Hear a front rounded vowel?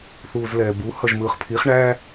no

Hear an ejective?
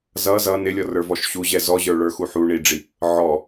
no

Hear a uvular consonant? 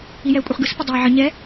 yes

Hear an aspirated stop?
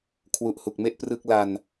yes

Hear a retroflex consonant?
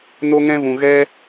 no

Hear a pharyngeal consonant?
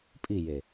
no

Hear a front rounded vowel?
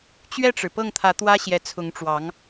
no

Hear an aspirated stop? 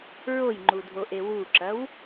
no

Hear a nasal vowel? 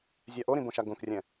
yes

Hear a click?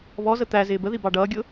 no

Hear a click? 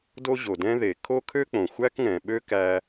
no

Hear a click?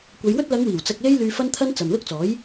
no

